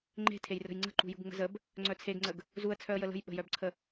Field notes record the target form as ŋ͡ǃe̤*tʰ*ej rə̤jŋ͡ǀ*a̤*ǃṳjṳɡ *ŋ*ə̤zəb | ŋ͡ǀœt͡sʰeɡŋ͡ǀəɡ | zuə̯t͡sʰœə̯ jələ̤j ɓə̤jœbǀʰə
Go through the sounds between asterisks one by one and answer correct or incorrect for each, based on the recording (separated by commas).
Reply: correct, incorrect, incorrect